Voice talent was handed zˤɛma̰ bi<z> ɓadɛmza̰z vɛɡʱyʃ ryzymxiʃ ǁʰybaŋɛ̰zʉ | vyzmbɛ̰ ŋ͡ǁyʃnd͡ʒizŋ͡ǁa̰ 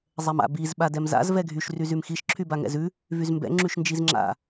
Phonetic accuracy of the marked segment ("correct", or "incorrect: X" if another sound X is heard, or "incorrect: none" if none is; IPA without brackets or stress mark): correct